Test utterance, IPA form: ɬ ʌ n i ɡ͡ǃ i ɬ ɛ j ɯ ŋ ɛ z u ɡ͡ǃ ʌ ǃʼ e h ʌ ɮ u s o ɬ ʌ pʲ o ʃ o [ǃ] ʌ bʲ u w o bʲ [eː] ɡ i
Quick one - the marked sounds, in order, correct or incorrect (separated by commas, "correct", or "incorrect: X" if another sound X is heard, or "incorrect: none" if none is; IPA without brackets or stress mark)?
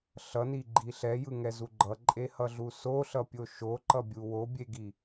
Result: correct, incorrect: e